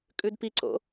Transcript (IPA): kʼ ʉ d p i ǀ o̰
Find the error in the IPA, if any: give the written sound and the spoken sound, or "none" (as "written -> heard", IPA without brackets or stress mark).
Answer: none